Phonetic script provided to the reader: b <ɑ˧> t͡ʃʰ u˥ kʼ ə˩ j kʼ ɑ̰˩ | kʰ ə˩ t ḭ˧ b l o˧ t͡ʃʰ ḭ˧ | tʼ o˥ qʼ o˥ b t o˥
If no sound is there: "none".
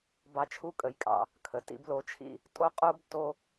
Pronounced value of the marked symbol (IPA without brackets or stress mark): ɑ˧